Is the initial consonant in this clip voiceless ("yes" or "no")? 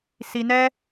yes